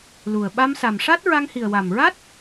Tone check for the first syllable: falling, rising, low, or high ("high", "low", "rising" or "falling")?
low